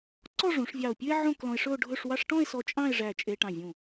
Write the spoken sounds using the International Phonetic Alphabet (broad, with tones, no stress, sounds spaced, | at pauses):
ǀ ɔ˥˧ ʐ ũ˩˧ ʂ vʲ ɑ˧˩ o̯ pʲ ʉ˥ e̯ ʕ õ˥˧ k l ɔ̃˧ e̯ ʂ ɵ˥˧ o̯ ɖʱ ɵ˥˧ ʂ w ɑ˥ ʂ ʈ ɔ̃˥˧ e̯ s ɔ˧ t͡ʃʼ ɑ̃˥˧ e̯ ʐ æ˧˩ t͡ʃʼ e˧ ʈ ɑ̃˧˩ vʲ ũ˧˩